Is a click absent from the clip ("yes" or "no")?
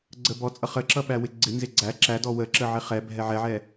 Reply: no